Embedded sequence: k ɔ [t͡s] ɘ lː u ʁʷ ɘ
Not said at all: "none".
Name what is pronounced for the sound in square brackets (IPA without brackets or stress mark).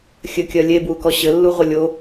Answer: ɕ